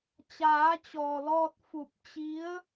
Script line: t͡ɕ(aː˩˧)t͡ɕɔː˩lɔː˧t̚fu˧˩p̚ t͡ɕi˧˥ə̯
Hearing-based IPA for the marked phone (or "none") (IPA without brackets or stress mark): aː˩˧